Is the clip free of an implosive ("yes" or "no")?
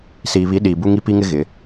no